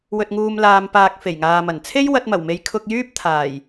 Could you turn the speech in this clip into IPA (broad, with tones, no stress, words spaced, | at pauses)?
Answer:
wɵ˨t̚ŋuː˨mlaː˨mpaː˨k̚ fe˨˩jŋaː˨mɐ˨˩n t͡sʰe˥jwɐ˧t̚mɐ˨˩wme˨˧j kʰʊ˧k̚jyː˥p̚ t̪ʰaː˨˩j